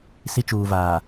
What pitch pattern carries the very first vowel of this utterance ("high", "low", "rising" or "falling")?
high